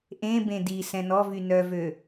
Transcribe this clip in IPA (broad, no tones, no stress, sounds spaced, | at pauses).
ʔ ẽ b ẽ d i s ɛ̃ n ɔ v y n œ v ø